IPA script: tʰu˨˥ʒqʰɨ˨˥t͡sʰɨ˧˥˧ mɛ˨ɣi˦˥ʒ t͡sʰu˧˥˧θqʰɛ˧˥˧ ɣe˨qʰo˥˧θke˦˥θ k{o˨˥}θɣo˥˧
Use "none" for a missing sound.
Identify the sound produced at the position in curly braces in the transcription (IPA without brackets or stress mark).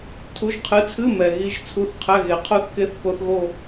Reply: o˦˥